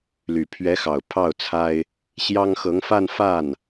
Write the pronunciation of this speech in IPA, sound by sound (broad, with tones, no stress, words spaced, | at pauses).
ly˨˩pʰɥɛ˧˥xɑ˨˩ʊ̯ pʰɑ˥˩ʊ̯t͡sʰa˥ɪ̯ | ɕjɑ˥ŋ xɤ˧˥ŋfa˥˧n fa˥˩n